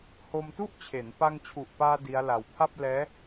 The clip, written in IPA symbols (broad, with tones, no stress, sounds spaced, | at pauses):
h o˧ m t u˥˩ ʔ t͡ɕʰ e˩˦ n p a˧ ŋ t͡ɕʰ u˨˩ ʔ p aː˧ d i˦˥ a̯ l a˧ w pʰ a˥˩ p̚ l ɛː˦˥